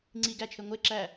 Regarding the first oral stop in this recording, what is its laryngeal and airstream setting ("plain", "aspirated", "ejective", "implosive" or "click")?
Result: click